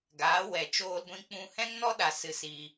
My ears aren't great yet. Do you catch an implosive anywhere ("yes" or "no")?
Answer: yes